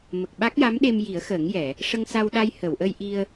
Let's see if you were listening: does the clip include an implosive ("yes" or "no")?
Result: yes